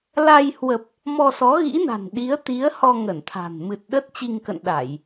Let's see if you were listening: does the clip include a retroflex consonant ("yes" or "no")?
no